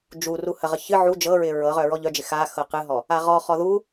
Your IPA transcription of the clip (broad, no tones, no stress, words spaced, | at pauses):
d͡ʒu ruhəʁə çɨ ʕu d͡ʒɤɹɪ ɹɤʁœ ɹɔʎœd͡ʒɪ xa xɤqɨɦɔ | aʁɔχɔ ðu